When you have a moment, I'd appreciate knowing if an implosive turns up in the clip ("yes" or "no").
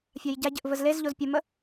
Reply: no